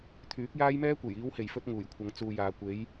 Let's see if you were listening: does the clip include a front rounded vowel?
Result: yes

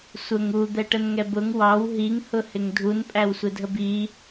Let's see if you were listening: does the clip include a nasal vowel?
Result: no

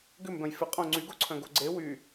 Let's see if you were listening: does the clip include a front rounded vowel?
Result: yes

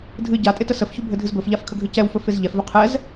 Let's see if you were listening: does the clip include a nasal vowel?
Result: no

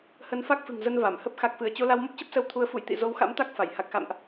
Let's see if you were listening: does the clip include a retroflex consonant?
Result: no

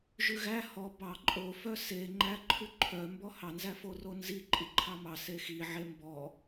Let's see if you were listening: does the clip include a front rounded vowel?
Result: yes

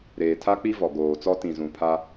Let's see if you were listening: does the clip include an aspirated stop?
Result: yes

